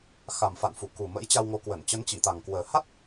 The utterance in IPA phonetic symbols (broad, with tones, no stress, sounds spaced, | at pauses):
x a˨˩ m f a̰˧˨ n f u˧˩ k u˨˩ m ə̰˧˥ j t͡ɕ a˧ w ŋ o˨˦ k w ə˧˩ n t͡ɕ ə˨˦ n t͡ɕ i˧˩ t̪ a˨˩ ŋ k w əː˨˩ h a˦˥ t̚